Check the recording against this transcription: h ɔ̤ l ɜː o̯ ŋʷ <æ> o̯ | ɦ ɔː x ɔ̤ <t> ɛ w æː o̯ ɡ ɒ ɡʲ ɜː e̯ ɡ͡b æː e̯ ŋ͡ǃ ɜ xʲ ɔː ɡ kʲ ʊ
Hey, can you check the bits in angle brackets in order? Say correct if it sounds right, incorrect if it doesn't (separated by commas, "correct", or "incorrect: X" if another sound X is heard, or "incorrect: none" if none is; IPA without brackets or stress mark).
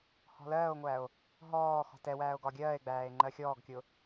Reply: correct, correct